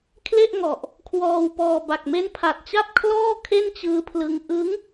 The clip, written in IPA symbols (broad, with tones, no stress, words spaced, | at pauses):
kʰle˥˩ʔŋɔ˨˩ʔ | kʰwɔː˧wpɔː˧ ba˨˩k̚me˦˥npʰa˨˩t̚t͡ɕa˥˩p̚ kʰlɔː˥˩ kʰe˥˩nt͡ɕɯː˦˥pʰlɯ˦˥ŋ ʔɯ˦˥ŋ